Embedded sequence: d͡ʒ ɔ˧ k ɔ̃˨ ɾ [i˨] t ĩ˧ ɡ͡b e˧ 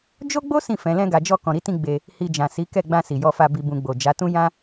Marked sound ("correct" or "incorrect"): incorrect